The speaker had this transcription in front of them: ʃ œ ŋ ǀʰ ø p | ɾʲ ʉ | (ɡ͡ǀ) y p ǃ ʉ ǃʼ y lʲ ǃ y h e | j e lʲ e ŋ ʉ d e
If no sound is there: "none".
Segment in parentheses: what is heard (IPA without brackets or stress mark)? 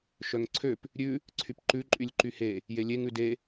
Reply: ǀʰ